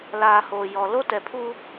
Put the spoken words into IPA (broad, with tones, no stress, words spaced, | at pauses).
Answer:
laː˨ ho˨jɔ˨ lo˦tɛ˨pʰu˦